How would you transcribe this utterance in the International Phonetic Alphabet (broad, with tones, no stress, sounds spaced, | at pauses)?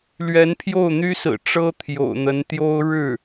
l ɥ ɛ˧˥ n pʰ j o˥˩ ʊ̯ n̪ y˥ s ɹ̩˨˩ ʈ͡ʂ ɤ˥ t̪ʰ j o̰˨˩ ʊ̯ n̪ ə˧˥ n t̪ j o˥ ʊ̯ ɻ ɻ̩˥˩